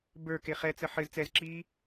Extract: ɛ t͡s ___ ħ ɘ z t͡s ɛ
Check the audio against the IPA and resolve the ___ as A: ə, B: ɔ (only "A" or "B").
A